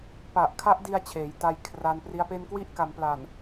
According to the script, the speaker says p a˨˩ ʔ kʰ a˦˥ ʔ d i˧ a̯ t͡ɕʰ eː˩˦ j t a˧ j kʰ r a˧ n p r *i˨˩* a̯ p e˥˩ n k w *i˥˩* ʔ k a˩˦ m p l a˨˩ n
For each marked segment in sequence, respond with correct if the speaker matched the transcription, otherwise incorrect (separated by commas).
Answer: incorrect, correct